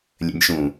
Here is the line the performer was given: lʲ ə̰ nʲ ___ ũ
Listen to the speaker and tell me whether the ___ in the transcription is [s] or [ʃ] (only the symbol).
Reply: ʃ